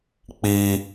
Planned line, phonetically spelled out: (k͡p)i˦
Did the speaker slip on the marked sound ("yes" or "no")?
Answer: no